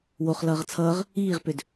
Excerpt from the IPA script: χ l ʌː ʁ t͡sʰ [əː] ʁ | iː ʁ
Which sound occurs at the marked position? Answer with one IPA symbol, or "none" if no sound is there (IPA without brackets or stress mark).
ʌː